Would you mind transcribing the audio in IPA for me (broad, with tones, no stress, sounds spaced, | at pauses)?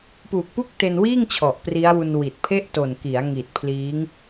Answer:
p uː˨˩ k̚ p u˥˩ k̚ t e˧ n w iː˥˩ ŋ t͡ɕʰ ɔ˨˩ ʔ p r i˦˥ a̯ w u˧ n w i˨˩ t̚ pʰ e˥˩ ʔ t o˨˩ n k i˩˦ a̯ ŋ i˨˩ t̚ pʰ l iː˦˥ ŋ